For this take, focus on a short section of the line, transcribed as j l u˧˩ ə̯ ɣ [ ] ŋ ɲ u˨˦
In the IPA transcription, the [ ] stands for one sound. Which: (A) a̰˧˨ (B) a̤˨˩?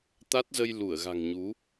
B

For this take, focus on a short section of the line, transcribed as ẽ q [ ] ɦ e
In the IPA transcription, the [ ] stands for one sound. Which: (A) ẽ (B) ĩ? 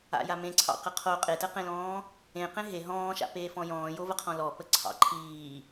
A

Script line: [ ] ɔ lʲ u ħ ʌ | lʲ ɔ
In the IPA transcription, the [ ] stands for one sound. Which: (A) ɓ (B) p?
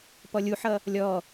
B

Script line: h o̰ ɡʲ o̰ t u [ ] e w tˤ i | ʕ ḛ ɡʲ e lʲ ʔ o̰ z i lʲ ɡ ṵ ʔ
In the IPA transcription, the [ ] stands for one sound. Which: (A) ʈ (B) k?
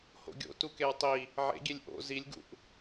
B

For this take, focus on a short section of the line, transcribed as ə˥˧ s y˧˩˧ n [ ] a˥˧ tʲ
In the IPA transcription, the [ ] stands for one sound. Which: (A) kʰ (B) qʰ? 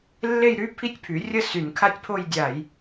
A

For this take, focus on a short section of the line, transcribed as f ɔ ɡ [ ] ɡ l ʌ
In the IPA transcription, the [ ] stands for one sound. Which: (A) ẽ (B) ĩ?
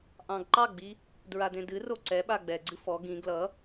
B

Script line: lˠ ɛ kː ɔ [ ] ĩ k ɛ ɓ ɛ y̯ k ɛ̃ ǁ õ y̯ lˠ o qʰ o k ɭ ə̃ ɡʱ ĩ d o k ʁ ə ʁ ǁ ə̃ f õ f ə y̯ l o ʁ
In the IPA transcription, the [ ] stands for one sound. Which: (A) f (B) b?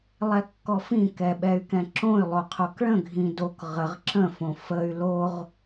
A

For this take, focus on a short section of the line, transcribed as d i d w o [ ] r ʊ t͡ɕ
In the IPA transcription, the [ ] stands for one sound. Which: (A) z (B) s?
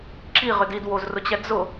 A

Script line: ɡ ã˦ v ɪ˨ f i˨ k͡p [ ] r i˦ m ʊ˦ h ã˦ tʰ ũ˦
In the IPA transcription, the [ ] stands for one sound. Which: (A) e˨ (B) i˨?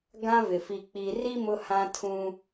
B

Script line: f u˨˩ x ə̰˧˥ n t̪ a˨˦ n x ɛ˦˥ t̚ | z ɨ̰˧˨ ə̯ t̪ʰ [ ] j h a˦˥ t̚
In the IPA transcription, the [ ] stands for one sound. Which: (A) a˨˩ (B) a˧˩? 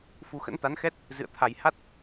A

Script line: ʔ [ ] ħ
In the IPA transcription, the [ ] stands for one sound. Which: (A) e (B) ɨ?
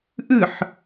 B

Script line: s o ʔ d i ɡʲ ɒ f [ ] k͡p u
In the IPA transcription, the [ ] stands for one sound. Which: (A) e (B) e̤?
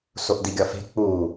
B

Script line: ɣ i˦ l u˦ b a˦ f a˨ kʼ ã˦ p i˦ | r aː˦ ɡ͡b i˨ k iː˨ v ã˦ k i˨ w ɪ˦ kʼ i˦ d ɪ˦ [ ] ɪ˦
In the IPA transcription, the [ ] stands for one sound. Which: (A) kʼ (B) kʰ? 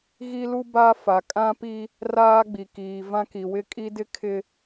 B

